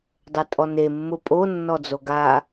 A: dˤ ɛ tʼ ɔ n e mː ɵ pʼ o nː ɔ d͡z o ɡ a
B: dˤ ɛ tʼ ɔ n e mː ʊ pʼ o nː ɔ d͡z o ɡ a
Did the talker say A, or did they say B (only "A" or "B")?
B